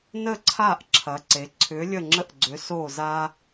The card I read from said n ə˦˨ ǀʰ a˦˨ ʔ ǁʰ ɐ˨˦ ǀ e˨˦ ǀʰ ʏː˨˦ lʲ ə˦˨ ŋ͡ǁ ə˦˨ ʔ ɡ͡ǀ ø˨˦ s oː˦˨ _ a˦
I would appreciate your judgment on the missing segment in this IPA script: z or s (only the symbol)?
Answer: z